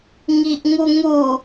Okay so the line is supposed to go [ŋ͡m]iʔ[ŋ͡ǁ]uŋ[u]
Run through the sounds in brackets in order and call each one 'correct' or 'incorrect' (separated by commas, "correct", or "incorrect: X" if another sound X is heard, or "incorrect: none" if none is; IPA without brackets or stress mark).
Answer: incorrect: ŋ, incorrect: ŋ, correct